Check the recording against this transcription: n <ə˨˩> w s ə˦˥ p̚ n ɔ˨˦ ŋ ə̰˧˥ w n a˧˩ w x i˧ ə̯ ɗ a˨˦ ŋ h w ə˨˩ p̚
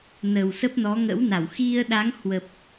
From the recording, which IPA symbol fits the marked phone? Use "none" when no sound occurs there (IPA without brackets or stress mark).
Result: ə˨˩